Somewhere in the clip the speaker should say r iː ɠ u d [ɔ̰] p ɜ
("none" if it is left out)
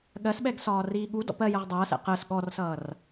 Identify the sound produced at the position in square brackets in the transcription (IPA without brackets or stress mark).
ɔ̰